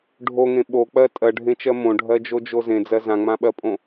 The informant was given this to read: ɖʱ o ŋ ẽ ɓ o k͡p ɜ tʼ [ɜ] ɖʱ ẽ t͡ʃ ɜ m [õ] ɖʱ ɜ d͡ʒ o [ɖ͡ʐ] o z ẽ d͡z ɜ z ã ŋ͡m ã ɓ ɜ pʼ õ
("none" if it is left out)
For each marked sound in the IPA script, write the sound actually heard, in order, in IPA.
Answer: ɜ, õ, d͡ʒ

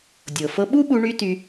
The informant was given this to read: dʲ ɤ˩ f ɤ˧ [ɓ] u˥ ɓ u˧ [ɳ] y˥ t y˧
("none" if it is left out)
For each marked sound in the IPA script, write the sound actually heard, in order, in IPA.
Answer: ɓ, ɳ

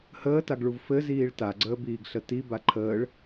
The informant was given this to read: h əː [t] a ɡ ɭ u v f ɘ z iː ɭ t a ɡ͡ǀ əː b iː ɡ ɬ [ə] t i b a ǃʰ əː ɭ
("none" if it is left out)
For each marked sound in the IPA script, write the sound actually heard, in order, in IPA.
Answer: t, ə

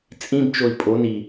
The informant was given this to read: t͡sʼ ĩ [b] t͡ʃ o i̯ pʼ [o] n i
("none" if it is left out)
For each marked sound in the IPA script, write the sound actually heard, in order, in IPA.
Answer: b, o

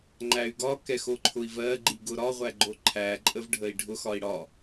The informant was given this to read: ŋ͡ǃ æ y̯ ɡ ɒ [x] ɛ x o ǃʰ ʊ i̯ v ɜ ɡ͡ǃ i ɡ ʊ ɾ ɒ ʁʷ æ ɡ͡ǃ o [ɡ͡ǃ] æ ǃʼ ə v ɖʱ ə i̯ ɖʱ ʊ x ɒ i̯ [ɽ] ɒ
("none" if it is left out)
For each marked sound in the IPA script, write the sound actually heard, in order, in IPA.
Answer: k, ǃʰ, ɽ

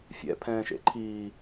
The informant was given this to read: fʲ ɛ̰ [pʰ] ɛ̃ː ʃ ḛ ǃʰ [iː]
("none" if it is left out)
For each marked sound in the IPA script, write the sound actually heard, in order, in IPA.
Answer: pʰ, iː

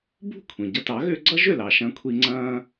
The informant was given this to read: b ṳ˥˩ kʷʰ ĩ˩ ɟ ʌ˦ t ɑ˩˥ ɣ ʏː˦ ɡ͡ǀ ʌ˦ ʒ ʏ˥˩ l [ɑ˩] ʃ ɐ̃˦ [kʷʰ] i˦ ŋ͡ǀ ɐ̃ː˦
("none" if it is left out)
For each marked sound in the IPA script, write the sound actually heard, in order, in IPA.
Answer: ɑ˩, kʷʰ

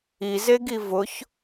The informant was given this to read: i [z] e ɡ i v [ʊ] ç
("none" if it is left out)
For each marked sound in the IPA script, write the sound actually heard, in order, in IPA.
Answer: z, ʊ

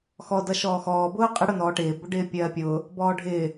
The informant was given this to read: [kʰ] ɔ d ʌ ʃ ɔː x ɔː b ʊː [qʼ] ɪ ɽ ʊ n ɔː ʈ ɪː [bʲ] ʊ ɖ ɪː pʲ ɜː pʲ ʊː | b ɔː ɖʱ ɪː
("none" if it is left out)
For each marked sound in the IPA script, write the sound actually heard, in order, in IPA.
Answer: x, qʼ, b

